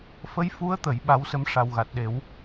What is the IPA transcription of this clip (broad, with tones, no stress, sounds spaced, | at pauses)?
f ə˧˥ j f u˧˥ ə̯ t̪ ə˨˩˦ j ɓ a˧˥ w s ə˧˥ m ʂ a˨˩ w ɣ a˨˩ t̚ ɗ e˨˩˦ w